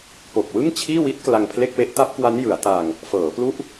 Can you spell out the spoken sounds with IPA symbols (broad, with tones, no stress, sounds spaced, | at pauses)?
p o˨˩ k̚ w ɯ˥˩ ŋ t͡ɕʰ iː˥˩ w i˦˥ t̚ k l a˧ ŋ pʰ l e˥˩ k̚ w e˦˥ ʔ t a˦˥ p̚ k w a˦˥ n j ɯ˩˦ a̯ t a˧ ŋ | f ɤː˩˦ p l u˦˥ ʔ